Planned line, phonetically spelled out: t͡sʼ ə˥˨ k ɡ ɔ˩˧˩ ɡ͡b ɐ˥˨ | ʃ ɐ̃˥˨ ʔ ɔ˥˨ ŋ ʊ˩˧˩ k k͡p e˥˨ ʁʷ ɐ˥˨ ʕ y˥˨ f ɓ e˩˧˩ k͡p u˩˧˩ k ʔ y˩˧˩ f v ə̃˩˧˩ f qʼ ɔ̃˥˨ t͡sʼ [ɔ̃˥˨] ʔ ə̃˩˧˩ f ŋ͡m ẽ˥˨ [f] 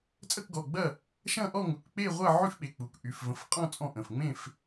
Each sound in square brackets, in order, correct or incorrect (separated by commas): correct, correct